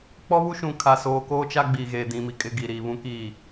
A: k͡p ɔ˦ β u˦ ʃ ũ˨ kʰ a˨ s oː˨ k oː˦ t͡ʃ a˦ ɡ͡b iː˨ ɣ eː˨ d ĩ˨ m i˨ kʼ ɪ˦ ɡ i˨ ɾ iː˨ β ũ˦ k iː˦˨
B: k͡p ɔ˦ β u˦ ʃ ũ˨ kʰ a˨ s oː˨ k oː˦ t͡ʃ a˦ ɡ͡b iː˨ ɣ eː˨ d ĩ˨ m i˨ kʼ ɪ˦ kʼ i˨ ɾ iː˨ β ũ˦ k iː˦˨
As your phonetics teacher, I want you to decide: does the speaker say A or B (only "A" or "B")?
A